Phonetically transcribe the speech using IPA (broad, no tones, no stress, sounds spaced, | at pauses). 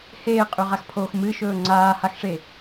h eː qʼ ʉ ʁ a x pʰ oː x m ɨ ʃ ɵː ŋ͡ǀ aː h a x ʂ e